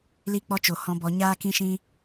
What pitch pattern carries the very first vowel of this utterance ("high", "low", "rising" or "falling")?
high